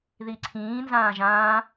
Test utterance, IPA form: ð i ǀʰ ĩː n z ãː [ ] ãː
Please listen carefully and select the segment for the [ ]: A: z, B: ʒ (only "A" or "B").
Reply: B